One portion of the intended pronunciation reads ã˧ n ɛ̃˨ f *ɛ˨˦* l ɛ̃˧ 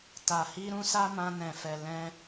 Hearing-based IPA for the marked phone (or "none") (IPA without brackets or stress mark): ɛ˨